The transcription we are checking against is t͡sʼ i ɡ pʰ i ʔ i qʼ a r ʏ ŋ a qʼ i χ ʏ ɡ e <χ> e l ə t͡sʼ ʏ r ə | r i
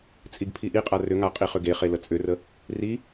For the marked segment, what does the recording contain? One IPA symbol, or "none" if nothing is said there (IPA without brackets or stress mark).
χ